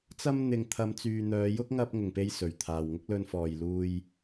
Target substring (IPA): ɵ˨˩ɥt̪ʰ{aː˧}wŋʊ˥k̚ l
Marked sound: incorrect: aː˨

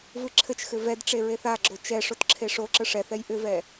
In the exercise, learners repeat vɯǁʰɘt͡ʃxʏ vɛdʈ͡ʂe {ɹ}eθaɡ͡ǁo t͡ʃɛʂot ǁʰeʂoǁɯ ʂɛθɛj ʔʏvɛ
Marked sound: correct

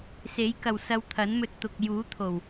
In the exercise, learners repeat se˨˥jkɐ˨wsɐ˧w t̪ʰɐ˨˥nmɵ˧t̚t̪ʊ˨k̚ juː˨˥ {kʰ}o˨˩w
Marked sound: incorrect: t̪ʰ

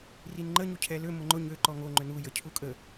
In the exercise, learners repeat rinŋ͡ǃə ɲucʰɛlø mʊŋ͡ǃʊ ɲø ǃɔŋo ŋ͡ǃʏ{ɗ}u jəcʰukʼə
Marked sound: incorrect: n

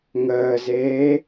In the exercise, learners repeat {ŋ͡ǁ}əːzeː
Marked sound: incorrect: ŋ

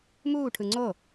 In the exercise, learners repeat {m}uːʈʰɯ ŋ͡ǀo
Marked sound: correct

